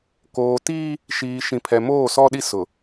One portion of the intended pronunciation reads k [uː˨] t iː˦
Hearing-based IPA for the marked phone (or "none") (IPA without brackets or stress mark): oː˨